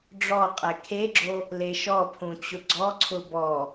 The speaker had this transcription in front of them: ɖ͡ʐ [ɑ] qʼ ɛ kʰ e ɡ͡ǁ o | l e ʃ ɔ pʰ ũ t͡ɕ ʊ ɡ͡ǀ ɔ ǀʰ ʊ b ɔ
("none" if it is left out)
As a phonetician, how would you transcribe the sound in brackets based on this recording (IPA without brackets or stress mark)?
ɔ